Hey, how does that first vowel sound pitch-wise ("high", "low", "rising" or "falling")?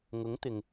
rising